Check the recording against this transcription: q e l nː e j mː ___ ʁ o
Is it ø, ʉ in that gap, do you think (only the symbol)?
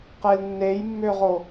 ø